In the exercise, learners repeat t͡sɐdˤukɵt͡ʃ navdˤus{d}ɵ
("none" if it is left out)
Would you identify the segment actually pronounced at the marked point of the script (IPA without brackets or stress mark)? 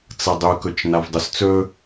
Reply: t͡s